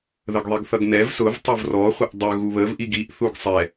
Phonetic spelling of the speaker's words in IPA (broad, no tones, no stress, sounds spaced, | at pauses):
ð ə ɡ ðˤ i ɡ θ ʌ ɡ n ɛ v s ʊ v tˤ ʊ v r ɔ χʷ ə ʔ dˤ ʊ ɣ u β ə v ʔ i ɡ i ʔ θ u ɡ sˤ ɛ